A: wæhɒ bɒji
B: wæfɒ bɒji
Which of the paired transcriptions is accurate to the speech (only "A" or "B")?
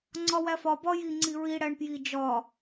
B